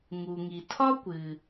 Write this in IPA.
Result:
ŋ u˩ ŋ i˩ tʰ ɒ˥ kʷ ɨ˩

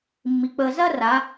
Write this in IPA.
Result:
mː i˩˧ k͡p əː˧ z ɐ˥ r a˩˧

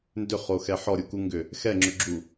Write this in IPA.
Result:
n d ʏ χ o x ɛ ħ ɔ ɾʲ u k u ŋ ɡ ʏ | x ɛ ŋ͡ǁ ʏ ɡ͡ǁ u

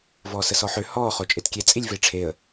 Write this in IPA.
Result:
v ɔː s ə s ɔ ħ ø h ɔː χ o t͡ʃʼ e t kʲ e t͡sʼ i lʲ v e ʈ͡ʂʰ e ə̯

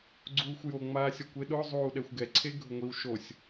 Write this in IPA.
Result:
ɡ͡ǀ uː xʷ j o ŋ͡m aː sʲ ɔ kʷ e ɗ ʊ zˤ uː ɗ ɛ xʷ ɡ ɛ ǀʰ e ɡʱ ʊ ŋʷ i w ʃ o sʲ

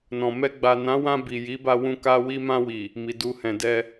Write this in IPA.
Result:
n ɔ̃˨ m ɛ˧ ɡ͡b a˨ n ã˨˦ w ã˧ b i˨ j i˨˦ b a˧ w ũ˧ k a˧ w i˧ m ã˧ w i˨ | m i˨ d u˧ h ɛ̃˨ d ɛ˧

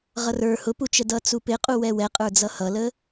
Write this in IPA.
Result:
ʁ ʌ r ə˞ h ʊ p u t͡ʃ ə d ʌ t͡s u p ɪ qʼ u w ɛ w ɛ qʼ ə˞ d͡z ʌ h ʌ l ə

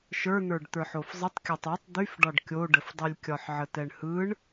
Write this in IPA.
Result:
ʃ ə˞ n̪ ə˞ ɖ t̪ ə˞ ħ o f zˤ ə tˤ kʲ ɒ tˤ o tˤ d̪ y f ɖ ɒ ɖ kʲ o ɖ ə f dˤ y lʲ kʲ ɒ ħ ʕ ə t ɛ ɳ h ɯ ɳ

